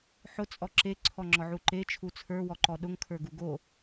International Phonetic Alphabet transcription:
ħ ʊ t͡sʼ ɔ ǁ e ǀʰ ɔ ŋ͡ǁ ɔ ʕ u ǃ e t͡ʃʰ u t͡sʰ ə˞ w ɔ ǃ ɔ ɗ ʊ ŋ kʰ ə˞ ɡ u ɡ o

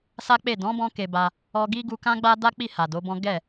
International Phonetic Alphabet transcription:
s a˦ k͡p e˦˨ d ɔ̃˨˦ b ɔ̃˧ k e˧ b a˧ | ɔ˧ ɡ i˦ ɡ u˧ k ã˦ ɡ͡b a˦ d a˦ k͡p i˦˨ h a˨ d o˨˦ b ɔ̃˦ ɡ ɛ˦˨

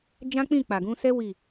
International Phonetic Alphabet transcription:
d͡ʒ ã˦ k͡p ĩ˦˨ k͡p a˨ ɡ ũ˧ s ɛ˦ w i˦˨

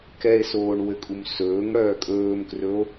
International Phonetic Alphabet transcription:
k ɛ e̯ s oː ɳ w ɘ kʼ u m s ɵː ŋ ɽ œː kʼ ɵː m k r ɵ o̯

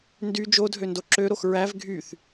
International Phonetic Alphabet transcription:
n d y d͡ʒ o dʱ ø n d o ǁ ø ɾ o x ɹ æ v ɡʱ y θ

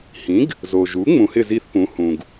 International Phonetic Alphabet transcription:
h ĩ˩˥ ɡ | z o˩ ʒ u˩˥ ŋ͡m ũ˩˥ h ɪ˥˨ z i˥˨ θ p ũ˩˥ h ũ˩ ɡ

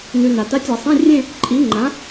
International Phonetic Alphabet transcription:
n ʉ˨ n a˨ t a˧˥˧ tʲ a˨˩˦ sˤ ĩ˧˥˧ rʲ ẽ˥˧ | ǃʼ i˨˥ ŋ͡ǃ ã˨˥

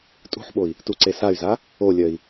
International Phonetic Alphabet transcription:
tʼ ṳ ħ ɓ o i̯ | t u ǀ e s a y̯ z a | o lʲ œ i̯

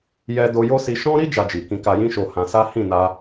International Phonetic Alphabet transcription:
j ɛ˧ d o˧ j o˦ s i˧ ʃ ɔ̃˦ ɾ i˦ d͡ʒ a˧ d͡ʒ i˨ k ĩ˧ k a˧ j ĩ˦ ʃ o˧ h ã˧ s a˦ h ĩ˦˨ n a˧

